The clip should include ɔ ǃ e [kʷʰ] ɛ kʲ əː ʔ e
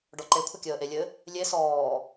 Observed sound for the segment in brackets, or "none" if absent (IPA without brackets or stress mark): kʷʰ